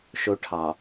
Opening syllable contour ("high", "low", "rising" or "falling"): high